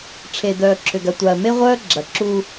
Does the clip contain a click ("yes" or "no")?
yes